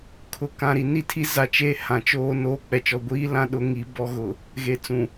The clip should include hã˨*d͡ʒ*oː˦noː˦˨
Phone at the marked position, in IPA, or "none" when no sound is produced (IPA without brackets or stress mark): t͡ʃ